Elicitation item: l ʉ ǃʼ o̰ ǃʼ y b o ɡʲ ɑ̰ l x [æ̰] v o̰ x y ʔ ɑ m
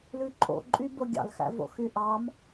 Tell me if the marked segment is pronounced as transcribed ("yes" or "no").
yes